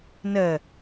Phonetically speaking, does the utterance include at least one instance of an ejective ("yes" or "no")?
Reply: no